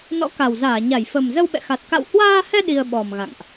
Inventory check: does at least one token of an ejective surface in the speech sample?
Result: no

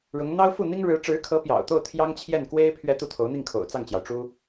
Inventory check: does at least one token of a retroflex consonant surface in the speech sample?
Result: yes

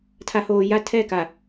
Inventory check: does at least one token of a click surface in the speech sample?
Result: no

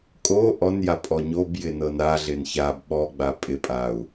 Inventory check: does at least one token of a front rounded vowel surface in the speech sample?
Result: no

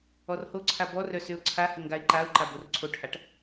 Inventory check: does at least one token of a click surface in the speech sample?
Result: yes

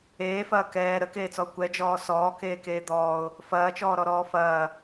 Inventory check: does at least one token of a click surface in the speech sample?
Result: no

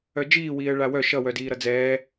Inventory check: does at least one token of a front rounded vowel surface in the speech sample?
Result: yes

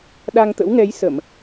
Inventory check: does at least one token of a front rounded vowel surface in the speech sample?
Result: no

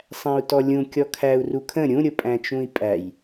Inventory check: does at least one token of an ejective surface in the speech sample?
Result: yes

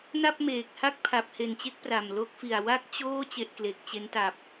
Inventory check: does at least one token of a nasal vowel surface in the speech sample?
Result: no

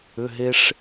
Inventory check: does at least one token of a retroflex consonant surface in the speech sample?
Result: yes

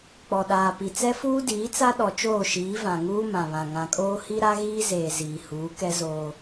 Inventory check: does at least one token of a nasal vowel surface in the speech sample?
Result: yes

